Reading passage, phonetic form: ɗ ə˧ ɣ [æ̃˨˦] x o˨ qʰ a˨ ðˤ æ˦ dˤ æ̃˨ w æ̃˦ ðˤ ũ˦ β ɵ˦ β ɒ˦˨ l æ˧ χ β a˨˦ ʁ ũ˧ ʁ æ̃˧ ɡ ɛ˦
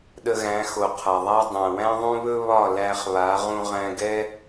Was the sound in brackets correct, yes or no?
yes